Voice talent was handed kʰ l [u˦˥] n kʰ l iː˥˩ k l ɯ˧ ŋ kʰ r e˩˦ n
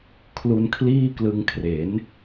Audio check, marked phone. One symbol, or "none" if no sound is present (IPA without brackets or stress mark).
u˧